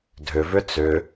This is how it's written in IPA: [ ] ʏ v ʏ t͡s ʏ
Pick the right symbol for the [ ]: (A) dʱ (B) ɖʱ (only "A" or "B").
A